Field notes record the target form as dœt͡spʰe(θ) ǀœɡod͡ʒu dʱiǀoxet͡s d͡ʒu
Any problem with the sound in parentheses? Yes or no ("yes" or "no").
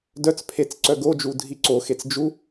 yes